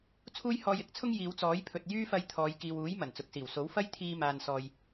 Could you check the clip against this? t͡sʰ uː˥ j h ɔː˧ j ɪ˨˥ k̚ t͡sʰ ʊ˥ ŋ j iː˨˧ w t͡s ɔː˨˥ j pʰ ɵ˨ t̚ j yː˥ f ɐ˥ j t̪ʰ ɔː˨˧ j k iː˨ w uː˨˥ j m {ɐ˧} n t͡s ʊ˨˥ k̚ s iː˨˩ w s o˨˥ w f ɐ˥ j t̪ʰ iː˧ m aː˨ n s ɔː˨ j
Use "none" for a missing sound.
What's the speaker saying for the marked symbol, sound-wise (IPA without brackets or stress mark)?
ɐ˨˩